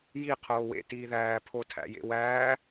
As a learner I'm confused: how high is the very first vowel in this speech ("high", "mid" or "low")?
high